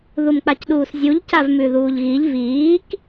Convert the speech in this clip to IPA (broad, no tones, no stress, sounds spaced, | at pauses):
ð u m k͡p a c ɗ uː s zʲ u ʎ c a v m ʉ ð uː ʎ ɣ i ʎ v iː k